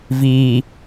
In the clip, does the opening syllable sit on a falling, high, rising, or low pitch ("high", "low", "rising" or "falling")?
low